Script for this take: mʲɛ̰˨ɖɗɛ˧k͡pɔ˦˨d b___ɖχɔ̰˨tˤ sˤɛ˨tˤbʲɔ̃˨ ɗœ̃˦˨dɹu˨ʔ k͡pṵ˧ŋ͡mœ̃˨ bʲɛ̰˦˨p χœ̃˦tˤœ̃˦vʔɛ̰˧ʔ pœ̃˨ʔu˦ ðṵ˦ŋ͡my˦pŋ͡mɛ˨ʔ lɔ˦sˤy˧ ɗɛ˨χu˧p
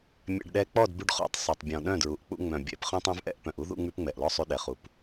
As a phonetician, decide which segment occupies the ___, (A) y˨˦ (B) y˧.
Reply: B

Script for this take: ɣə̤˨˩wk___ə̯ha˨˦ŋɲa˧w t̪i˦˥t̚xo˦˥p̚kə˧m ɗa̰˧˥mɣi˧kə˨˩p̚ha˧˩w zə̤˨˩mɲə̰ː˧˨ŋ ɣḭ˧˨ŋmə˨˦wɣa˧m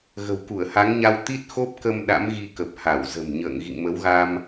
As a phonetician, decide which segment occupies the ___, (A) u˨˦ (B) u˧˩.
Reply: B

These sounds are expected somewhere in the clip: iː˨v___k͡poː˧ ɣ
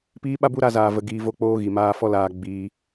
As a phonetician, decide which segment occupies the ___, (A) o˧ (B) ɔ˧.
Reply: A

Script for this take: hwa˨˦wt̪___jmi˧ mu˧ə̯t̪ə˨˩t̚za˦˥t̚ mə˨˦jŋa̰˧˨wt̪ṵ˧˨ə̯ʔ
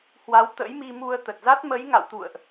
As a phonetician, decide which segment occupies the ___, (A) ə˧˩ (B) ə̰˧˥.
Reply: B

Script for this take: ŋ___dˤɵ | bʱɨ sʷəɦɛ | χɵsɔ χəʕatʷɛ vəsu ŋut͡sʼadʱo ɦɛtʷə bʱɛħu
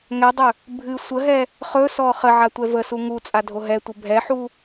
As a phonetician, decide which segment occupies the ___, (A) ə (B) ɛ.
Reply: B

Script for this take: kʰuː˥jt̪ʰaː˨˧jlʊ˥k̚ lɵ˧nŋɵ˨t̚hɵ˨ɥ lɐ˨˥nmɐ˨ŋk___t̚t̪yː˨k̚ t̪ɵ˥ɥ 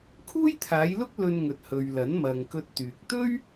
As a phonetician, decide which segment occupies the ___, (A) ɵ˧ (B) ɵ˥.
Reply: A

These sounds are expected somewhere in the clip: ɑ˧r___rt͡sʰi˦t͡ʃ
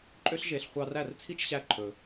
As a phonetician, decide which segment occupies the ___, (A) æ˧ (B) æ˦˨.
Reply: B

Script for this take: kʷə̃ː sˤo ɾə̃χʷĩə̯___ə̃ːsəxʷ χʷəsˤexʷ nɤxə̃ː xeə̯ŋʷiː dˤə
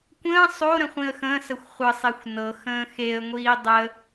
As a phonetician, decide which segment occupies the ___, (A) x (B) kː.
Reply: A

